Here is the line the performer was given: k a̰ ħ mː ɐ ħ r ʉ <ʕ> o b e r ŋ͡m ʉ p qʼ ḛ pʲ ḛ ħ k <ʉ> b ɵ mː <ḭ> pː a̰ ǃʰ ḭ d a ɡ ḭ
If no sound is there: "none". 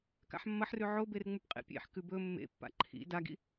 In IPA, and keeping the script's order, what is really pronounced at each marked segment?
ʕ, ʉ, ḛ

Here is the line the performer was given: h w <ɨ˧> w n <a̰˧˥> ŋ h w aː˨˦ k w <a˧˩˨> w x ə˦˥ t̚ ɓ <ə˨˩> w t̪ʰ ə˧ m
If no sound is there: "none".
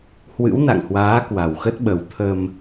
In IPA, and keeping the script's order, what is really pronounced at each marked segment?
ɨ̰˧˥, a̰˧˨, a˨˩, ə˨˩

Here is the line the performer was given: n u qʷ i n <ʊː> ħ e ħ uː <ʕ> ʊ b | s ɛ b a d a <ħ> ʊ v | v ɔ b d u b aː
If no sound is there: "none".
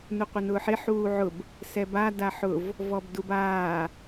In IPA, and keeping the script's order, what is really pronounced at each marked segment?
ʊː, ʕ, ħ

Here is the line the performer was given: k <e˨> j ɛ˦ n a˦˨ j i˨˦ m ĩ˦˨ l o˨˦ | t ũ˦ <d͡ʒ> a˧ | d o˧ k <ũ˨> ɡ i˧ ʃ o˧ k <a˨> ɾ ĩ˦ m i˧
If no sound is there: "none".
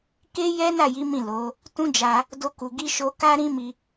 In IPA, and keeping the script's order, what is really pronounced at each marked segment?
e˦, d͡ʒ, u˨, a˦

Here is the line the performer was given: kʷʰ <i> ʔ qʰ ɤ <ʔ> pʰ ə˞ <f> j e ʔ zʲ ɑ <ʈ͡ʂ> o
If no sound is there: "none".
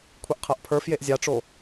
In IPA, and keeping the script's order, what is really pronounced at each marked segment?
i, ʔ, f, ʈ͡ʂ

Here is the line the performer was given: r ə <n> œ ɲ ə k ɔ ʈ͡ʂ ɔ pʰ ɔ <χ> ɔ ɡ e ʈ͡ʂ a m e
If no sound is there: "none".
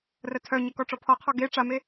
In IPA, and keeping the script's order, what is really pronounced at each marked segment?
tʰ, qʰ

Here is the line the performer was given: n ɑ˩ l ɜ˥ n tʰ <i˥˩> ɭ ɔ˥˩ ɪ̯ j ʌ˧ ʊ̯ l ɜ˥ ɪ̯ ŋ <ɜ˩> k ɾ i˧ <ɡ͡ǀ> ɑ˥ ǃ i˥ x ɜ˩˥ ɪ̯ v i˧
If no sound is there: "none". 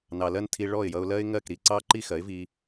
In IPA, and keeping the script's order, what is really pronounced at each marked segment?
i˧, ɜ˥˩, ǀ

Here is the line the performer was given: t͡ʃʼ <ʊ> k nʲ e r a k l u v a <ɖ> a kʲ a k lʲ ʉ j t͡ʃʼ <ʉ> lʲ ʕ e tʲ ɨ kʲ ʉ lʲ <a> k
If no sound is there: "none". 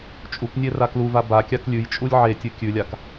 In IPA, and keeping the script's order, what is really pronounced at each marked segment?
u, b, u, a

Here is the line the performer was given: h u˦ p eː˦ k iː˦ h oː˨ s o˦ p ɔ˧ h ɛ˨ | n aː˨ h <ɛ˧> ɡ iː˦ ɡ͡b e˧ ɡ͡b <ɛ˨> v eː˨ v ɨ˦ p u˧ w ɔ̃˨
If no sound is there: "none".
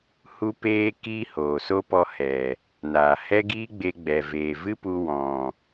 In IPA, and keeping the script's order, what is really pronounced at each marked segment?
ɛ˦, ɛ˨

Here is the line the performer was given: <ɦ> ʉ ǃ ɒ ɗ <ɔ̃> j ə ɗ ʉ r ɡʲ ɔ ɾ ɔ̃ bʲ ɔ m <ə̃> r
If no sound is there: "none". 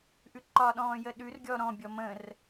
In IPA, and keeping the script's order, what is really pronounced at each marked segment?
ʔ, ɔ̃ː, ə̃

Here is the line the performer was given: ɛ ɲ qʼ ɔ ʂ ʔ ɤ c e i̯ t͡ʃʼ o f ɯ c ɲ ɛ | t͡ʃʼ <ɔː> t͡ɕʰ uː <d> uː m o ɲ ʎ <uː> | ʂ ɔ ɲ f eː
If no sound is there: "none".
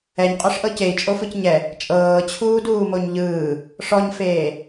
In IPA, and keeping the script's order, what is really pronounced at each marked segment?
ɤː, d, ɯː

